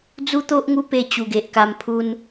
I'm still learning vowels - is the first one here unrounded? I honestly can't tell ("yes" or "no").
no